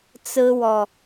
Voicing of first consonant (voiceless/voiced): voiceless